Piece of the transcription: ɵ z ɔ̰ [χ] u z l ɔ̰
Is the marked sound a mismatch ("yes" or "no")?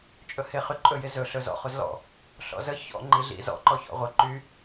no